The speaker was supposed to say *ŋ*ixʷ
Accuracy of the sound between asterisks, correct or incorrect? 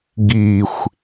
incorrect